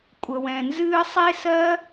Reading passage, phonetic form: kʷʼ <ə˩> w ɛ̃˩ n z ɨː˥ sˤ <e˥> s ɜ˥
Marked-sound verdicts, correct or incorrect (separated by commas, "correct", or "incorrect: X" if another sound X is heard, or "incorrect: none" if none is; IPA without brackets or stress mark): correct, correct